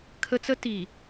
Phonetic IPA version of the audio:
kʰə˦t͡sə˦ ti˨

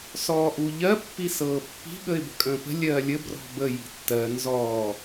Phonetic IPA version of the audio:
sɔːʔuʎɜ pːisɤːpːi̤ ɠəɪ̯bə̤kʼə̃ːpə̤ lʲɜːlʲə brɔ̤bə ji̤tːɜ nzɔː

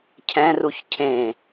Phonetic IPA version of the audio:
cʰɛ̃ruç cʰẽ

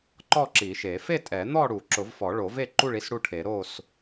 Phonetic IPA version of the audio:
ǃɔ˥˨ǁi˨˩˦ʃe˨˩˦ fe˥˨tʼɛ˨˩˦n̪ɔ˥˨ɽu˨˩˦ ǁʊ˨˩˦vfɔ˨˩˦ɭo˨˩˦ve˥˨ ǃu˥˨ɭi˥˨s ɽu˥˨ʈʰe˨˩˦ ɾo˥˨s

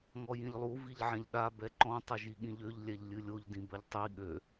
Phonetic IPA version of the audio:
ŋɔjĩʎlˠu viʎʕɛ̃ʎɗa bɛǃɔ̃ tˤʌʒiɠĩʎøʎ lʲɛʎlʲɨlʲoʎ dĩbɐʎtˤi ɠø

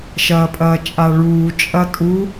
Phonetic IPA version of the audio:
ʃɐːpʼɐːt͡ʃʼaɭuː t͡ʃʼɐtʼu

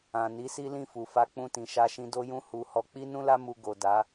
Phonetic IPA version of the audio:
ã˨ni˨˦ si˦lĩ˦˨fu˨fa˧ k͡pũ˧tĩ˨ʃa˧ʃĩ˧ do˧jũ˧ hu˨hɔ˨˦ k͡pi˦nũ˦la˦ mu˧ ɡo˨da˨˦

